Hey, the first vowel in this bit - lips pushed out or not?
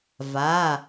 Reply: no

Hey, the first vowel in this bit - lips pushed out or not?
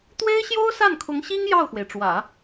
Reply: no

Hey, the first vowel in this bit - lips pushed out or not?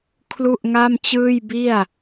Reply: yes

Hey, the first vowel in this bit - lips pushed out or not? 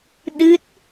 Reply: no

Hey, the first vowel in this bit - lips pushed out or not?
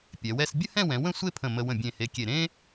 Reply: no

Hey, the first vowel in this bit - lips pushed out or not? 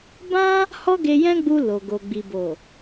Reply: no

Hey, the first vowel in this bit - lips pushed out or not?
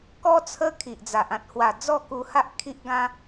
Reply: yes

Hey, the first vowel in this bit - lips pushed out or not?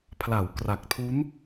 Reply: no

